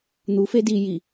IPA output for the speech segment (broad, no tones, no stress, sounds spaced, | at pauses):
n̪ u f e d i j i